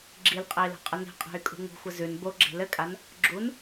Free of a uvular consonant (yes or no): no